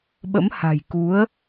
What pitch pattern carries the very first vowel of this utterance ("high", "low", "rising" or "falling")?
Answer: rising